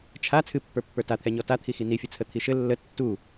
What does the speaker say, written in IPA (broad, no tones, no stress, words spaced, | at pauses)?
t͡ʃʰa t͡sʰɨpːə˞pːə˞ tat̪ʰɛɲɔ tat̪ʰixi nifʲɨ t͡sʰət̪ʰiʃɘ lːə tːu